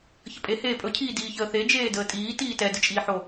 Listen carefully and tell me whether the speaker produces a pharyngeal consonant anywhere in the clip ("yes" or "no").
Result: yes